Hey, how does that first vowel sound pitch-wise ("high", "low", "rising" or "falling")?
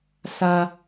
high